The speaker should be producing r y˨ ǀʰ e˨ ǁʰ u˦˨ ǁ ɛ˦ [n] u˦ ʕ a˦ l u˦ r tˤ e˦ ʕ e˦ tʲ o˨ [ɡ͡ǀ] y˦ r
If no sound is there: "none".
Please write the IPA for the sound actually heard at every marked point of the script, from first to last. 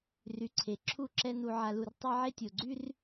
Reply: n, ɡ͡ǀ

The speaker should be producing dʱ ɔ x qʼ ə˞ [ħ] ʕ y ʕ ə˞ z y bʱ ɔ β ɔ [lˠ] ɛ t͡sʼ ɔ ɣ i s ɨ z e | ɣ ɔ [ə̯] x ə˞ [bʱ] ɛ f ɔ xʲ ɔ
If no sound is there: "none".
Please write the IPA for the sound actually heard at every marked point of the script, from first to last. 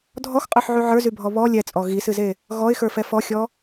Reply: ħ, lʲ, ɪ̯, f

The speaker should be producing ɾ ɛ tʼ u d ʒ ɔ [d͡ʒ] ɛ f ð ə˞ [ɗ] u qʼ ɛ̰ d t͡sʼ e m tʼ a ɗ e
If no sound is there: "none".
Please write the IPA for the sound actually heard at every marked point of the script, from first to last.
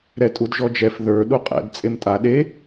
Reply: d͡ʒ, ɗ

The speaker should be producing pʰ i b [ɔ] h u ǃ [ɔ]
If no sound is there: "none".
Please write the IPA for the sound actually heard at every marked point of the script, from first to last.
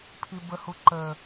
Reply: ə, ə

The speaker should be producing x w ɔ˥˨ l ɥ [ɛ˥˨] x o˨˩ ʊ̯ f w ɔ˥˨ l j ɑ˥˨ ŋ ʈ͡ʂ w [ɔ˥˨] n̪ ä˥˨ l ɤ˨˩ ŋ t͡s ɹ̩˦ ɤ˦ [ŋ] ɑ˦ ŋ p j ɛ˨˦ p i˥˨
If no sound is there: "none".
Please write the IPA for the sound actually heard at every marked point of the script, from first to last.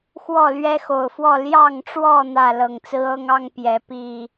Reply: ɛ˦, ɔ˥˨, ŋ

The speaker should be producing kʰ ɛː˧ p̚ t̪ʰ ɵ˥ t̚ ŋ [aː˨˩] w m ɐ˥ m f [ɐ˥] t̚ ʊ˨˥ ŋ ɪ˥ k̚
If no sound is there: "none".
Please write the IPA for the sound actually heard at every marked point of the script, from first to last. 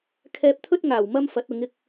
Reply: aː˨˩, ɐ˨˥

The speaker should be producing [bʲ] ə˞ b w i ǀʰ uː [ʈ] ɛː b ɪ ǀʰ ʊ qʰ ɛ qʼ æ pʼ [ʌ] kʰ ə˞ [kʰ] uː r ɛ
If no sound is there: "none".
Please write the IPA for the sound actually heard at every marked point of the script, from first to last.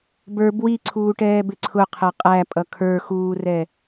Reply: b, ʈ, ʌ, x

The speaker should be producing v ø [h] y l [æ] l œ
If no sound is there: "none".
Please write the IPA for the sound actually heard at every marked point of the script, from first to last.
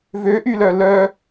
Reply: ʔ, œ

